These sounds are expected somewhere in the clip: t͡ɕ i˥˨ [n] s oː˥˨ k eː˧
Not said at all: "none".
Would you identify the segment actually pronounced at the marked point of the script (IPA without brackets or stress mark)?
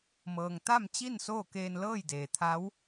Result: n